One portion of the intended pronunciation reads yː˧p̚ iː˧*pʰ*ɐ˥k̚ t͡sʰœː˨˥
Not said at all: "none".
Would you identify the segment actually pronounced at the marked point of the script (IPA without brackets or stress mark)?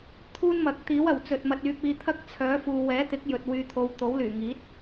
t̪ʰ